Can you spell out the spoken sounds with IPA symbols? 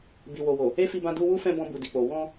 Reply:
b i˨ w o˨ w o˨ | e˦ f i˧ b ã˧ d u˧ w u˦ f ɛ̃˧ b ɔ̃˧ b u˨ d i˨ k͡p o˨ w ɔ̃˧

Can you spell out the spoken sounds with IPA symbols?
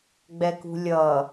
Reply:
ɡ͡b ɛ k ṳ lʲ ʌ

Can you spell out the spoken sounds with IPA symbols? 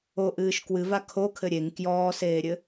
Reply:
o ʔ ɨː ʃ k w ɨ v a kʰ o kʰ ɘ ɾʲ e ŋ k j ɔː s eː ɾʲ ɘ

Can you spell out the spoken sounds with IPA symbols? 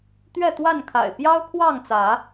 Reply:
t̪ ɥ ɛ˥˨ t̪ w a˥˨ n kʰ a̰˨˩ ɪ̯ p j ɑ˦ ʊ̯ kʰ w ɑ˥˨ ŋ t͡s ä˨˦

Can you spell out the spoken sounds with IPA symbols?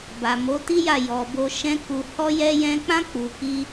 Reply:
b a˨ m o˨˦ t i˦ j a˦˨ j ɔ˨ b o˧ ʃ ɛ̃˦ k u˧ h ɔ˦ j ɛ˦ j ɛ̃˦ k͡p ã˦ k͡p u˧ k i˦

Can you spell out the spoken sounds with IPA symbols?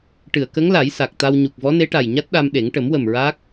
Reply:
ʈ ɨ˨˩˨ ə̯ k ə˧˥ ŋ l a˨˩˦ j s a˨˩ k̚ t̪ a˧ w ɲ u˨˩ k̚ v ɔ˧˥ n e˧˥ ʈ a˨˩ j ɲ a˦˥ t̚ ɗ a˧ m ɗ e˨˩˦ ŋ ʈ ə˨˩˦ m w ə˨˩ m ɹ a˦˥ k̚

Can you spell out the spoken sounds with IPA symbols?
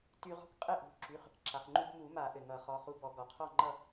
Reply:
t y˧ ʁ ɔ̤˥˨ k qʼ ɘ˥˨ ʔ ṳ˩˧˩ ǁ y˩˧˩ χ | ǁ a˩ χ ŋ͡ǃ u˧ b m u˨˩˦ m a˨˩˦ ʔ ɘ˩ ŋ ʌ˨˩˦ χ ɔ˩˧˩ χ u˧ b ɔ˨˩˦ ɡ ɔ˩ qʰ ɔ˥˨ ŋ͡ǃ ʌ˥˨

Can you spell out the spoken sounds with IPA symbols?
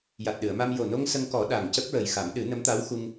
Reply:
j a˨˩ t̚ ɗ ɨ˨˩˨ ə̯ m a˧ m j o˨˩ n o˧ ŋ s ə˧ ŋ k ɔ˨˩˦ ɗ a˨˩ ŋ c ə˦˥ k̚ ɹ ə˨˩ j x a˨˩˦ m ɗ ɨ˨˩˦ n ə˧˥ m t̪ a˧˥ w x u˧ ŋ

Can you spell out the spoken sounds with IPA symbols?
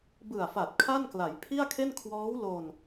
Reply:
b ɯ˨˩ a̯ f a˨˩ t̚ kʰ a˥˩ n k l a˩˦ j pʰ i˥˩ a̯ kʰ e˥˩ n kʰ w ɔː˦˥ w l o˧ n

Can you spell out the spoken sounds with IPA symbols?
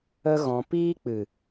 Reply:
ə˦ ɣ ɔ̃˧ p iː˦ k͡p ɨ˨

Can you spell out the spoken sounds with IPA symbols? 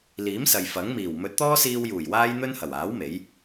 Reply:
l iː˨˥ m s ɐ˨ j f ɐ˨˥ ŋ m iː˨˩ w m ɵ˨˥ t̚ t̪ ɔː˥ s iː˧ w j uː˨˩ j w aː˥ j n̪ ɵ˥ n h ɐ˨˩ w aː˨˥ w m e˨˥ j

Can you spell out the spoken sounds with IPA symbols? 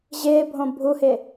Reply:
ʑ ɪː bʱ õ bʱ u h ɪ

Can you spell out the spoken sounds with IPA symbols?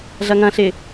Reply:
ɮ ɐ ŋ ɐ̃ ɬ ɪ

